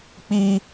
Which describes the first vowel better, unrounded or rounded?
unrounded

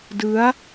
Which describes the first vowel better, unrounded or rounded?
unrounded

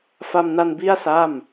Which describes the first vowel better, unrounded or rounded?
unrounded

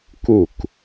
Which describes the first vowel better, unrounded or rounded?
rounded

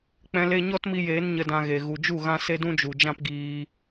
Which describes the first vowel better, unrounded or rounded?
unrounded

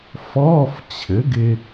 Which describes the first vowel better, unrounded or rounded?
rounded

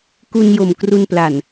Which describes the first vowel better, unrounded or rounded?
rounded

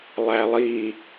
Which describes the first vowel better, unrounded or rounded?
unrounded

